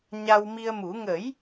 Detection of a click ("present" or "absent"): absent